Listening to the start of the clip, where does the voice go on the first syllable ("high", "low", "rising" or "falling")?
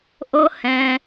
high